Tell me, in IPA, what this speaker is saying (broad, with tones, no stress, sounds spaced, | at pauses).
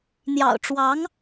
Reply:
n̪ j ɑ̰˨˩ ʊ̯ ʈ͡ʂ w ɑ˧˥ ŋ